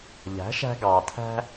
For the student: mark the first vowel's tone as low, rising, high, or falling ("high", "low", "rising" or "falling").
rising